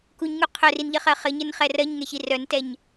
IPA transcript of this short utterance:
k u ɲ ŋ u qʰ œ r i n ʎ ɘ χ ɜ χ ɘ ɲ ɘ n χ ɛ r ɜ ɲ ŋ ɛ ç i r œ n t ɛ ɲ

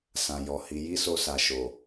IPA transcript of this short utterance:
s ã˨ j ɔ˨ h i˨˦ j i˦ s o˧ s a˨ ʃ o˨

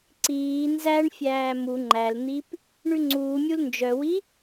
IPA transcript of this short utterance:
ǀ iː n z æ ɳ fʲ æː m u ŋ͡ǃ æ l n̪ i p | ɳ ʉ ŋ͡ǀ uː mʲ u l n d͡ʒ œ w i

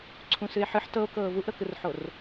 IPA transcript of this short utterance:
ǀʰ ũ s ɨ e̯ ħ ɨ ħ t ɤ o̯ k ɤː v u ʔ ɾ ɤ k ɯ r ħ o r

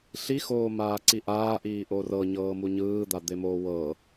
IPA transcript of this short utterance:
ɬ i x oː m aː ǀ i ʔ aː ʔ iː ʔ o r ɤ ɲ ɤː m u ɲ ɯː d̪ a d̪ e m oː w ɤ

